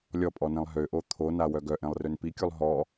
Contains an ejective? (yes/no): yes